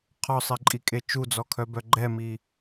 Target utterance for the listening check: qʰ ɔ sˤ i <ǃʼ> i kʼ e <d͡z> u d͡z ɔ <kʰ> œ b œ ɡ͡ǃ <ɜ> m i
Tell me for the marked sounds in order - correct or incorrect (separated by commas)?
correct, incorrect, correct, incorrect